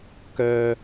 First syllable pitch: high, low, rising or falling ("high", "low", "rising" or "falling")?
low